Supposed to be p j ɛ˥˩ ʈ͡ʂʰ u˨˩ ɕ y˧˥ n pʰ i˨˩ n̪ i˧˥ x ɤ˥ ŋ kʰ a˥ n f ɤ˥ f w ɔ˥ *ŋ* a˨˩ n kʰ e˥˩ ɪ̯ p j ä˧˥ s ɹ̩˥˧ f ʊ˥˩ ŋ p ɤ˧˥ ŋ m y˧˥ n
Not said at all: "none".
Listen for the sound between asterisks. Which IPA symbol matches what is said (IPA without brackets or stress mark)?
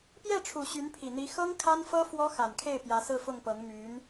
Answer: x